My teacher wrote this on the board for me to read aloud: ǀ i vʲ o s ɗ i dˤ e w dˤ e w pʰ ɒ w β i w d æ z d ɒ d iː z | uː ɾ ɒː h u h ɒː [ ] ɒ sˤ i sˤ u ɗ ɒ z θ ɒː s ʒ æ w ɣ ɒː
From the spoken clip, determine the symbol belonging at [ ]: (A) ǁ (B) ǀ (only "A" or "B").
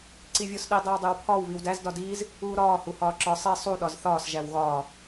A